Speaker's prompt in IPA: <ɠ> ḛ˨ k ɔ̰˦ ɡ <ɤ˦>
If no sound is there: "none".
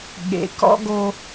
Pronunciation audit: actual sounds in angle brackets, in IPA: ɠ, o˦

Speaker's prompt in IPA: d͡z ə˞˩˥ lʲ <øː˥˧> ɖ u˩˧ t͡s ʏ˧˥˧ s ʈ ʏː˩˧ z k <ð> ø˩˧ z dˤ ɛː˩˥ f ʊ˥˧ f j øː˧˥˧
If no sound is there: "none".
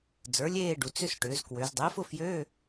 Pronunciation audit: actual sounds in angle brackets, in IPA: eː˥˧, w

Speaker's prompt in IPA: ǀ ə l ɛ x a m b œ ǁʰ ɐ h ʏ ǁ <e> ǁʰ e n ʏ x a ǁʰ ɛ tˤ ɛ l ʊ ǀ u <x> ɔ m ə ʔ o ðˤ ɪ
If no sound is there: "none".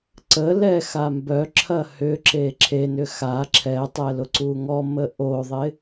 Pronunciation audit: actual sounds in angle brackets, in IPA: e, ŋ

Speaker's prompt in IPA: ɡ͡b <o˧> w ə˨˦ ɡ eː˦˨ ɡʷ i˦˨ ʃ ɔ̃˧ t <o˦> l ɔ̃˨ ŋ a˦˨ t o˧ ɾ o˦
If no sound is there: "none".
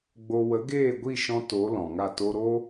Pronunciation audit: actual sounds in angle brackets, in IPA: o˧, o˨˦

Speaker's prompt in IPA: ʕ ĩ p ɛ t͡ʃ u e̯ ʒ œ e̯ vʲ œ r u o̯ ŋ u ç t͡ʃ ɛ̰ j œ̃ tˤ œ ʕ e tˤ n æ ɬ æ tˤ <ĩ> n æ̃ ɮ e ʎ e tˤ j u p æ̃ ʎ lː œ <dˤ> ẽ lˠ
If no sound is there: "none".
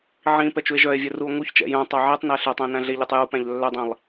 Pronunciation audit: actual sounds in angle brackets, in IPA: ẽ, dˤ

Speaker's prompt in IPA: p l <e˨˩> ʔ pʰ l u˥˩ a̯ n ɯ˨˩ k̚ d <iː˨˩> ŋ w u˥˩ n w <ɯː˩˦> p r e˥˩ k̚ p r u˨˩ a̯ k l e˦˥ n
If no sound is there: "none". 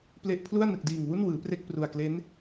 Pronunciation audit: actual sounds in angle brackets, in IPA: e˦˥, iː˨˩, ɯː˩˦

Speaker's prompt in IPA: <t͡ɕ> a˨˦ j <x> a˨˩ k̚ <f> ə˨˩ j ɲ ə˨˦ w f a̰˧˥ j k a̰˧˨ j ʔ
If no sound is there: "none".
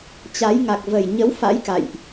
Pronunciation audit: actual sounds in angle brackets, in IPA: t͡ɕ, ŋ, v

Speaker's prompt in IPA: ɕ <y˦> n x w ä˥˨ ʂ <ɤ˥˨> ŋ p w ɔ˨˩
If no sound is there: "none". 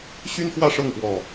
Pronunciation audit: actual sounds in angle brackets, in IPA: y˦, ɤ˥˨

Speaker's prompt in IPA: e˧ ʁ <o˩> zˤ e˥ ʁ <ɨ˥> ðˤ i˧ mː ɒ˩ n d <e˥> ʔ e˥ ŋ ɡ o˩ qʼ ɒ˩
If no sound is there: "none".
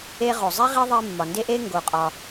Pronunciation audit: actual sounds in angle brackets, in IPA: o˩, i˥, e˥

